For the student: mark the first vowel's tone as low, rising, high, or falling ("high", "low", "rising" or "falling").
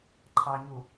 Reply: low